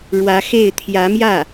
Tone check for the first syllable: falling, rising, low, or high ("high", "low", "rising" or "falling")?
rising